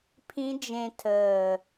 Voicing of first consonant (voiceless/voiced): voiceless